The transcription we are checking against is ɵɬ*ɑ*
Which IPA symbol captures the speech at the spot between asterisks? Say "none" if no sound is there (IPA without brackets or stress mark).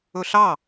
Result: ɑ